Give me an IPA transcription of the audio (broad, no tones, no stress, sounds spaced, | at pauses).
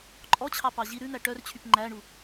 ǃʼ ɔ t͡ɕʰ ɑ p ɑ ʑ i ɾ ʉ n̪ æ ʈ œ r t͡ɕʰ y p ŋ͡ǃ æ ɳ u